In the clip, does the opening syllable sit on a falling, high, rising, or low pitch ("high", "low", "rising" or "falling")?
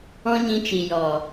high